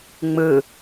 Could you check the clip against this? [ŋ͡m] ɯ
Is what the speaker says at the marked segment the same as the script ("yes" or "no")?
yes